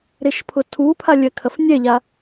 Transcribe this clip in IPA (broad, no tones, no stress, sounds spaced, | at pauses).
ɾ e ʃ pʰ ʊ tʰ u pʰ a lʲ ɜ kʰ ɐ f nʲ ɛ ʎ a